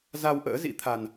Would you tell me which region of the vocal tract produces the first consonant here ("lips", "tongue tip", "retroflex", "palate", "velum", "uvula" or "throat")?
tongue tip